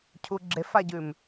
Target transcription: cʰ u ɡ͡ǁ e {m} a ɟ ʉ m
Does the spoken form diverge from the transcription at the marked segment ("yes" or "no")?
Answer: yes